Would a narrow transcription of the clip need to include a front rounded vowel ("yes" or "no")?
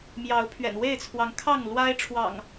no